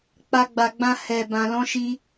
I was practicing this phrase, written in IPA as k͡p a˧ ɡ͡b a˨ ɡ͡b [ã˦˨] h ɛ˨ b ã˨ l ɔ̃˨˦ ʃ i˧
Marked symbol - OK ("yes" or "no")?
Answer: no